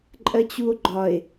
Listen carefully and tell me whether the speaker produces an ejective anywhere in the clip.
yes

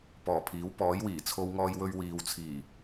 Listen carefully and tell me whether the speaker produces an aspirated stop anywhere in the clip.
yes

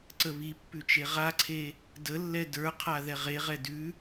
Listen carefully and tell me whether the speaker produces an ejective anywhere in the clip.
no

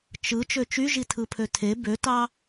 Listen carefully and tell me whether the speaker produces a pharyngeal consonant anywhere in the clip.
no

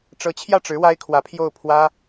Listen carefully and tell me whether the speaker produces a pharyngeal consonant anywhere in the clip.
no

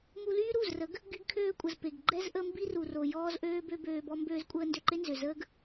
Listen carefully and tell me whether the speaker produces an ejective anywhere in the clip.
yes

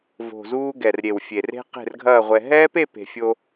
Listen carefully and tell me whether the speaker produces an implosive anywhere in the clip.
no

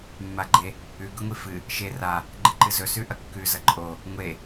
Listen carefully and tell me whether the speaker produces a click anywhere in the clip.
yes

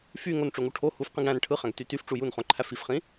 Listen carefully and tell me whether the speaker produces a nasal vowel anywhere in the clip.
yes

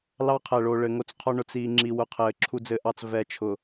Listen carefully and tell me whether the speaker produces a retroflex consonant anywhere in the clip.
yes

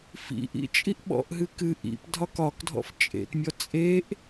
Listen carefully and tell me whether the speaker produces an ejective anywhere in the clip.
yes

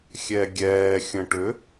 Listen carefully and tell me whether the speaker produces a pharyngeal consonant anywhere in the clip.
no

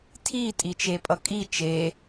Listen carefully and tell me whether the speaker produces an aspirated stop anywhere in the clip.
yes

